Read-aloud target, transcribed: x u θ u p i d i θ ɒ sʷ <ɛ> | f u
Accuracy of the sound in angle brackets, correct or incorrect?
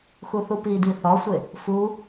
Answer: incorrect: e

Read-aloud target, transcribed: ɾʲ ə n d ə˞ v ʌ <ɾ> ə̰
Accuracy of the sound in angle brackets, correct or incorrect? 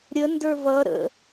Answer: correct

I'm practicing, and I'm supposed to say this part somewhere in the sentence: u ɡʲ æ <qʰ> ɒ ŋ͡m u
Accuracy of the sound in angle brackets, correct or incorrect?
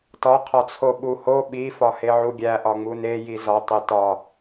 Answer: incorrect: ʔ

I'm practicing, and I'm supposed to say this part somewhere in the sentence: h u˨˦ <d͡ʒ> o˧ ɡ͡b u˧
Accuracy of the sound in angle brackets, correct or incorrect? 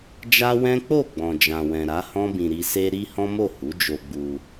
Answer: correct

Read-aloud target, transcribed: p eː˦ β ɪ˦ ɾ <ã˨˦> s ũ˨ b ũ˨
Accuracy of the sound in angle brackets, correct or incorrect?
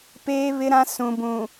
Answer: incorrect: ã˦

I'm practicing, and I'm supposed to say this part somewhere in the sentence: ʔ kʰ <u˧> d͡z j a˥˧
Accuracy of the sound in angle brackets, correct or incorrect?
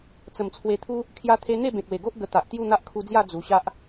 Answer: correct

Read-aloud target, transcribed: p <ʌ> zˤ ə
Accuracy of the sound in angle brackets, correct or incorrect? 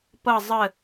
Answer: correct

